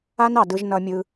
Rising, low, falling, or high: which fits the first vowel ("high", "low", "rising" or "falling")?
high